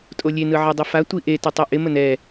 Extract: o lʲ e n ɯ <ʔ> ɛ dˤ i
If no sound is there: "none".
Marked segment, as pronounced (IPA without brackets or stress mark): ʕ